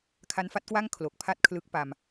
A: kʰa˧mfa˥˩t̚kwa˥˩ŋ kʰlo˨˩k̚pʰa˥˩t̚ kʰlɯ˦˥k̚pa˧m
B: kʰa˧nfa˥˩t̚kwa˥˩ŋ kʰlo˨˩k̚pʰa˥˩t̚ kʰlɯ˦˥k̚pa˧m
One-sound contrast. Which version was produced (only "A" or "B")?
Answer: B